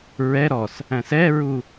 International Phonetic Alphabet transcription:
ɹ ɛ ɾ ɔ s | æ̃ s ɛ ɹ u

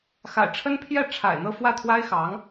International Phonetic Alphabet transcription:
x a̰˨˩ ɪ̯ ʈ͡ʂʰ ə˥ n pʰ j ɛ˥˩ ʈ͡ʂʰ a̰˨˩ ɪ̯ n̪ ɤ˥˧ f w ä˥˩ t̪ʰ w a˥ ɪ̯ x ɑ˧˥ ŋ

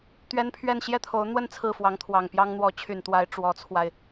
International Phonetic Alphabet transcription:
t̪ ɥ ɛ˥ n pʰ ɥ ɛ˥˧ n ɕ j ɛ˥˩ t̪ʰ o˧˥ ʊ̯ n̪ w ə˥˧ n t͡sʰ ɹ̩˥˩ f w ɑ˧˥ ŋ t̪ʰ w ɑ˨˩ ŋ p j ɑ˥ ŋ n̪ w ɔ˧˥ t͡ɕʰ y˨˩ n t̪ w a˧˥ ɪ̯ ʈ͡ʂ w ɔ˧˥ t͡sʰ w a˧ ɪ̯

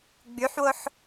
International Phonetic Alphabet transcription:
ɡ͡b y ħ w o ħ

